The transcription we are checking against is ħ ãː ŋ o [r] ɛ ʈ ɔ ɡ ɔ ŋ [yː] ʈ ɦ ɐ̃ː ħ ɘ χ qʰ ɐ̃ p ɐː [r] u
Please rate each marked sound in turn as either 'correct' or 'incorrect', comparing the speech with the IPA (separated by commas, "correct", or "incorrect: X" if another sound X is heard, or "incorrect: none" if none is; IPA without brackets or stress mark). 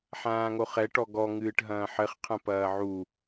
incorrect: χ, incorrect: ɨː, incorrect: ʕ